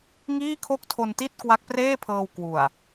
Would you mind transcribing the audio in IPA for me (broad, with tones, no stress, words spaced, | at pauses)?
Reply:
ŋiː˥˩kʰo˥˩k̚tʰo˧nti˥˩t̚ kwa˦˥k̚preː˥˩pʰɤː˧w kwu˨˩a̯